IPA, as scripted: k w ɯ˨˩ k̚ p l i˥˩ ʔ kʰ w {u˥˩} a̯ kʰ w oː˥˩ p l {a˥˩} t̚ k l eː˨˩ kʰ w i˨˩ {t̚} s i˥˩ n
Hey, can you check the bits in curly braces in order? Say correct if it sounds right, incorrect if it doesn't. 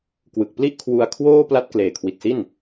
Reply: incorrect, correct, correct

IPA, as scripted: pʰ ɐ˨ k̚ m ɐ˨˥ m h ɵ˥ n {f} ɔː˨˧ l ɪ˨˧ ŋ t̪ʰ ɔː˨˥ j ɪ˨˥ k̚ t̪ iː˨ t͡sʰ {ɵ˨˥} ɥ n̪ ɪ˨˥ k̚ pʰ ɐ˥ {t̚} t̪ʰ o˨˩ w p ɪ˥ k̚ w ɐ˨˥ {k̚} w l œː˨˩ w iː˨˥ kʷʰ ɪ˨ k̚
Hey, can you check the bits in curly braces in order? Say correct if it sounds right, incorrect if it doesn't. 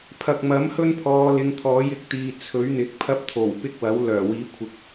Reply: incorrect, correct, incorrect, incorrect

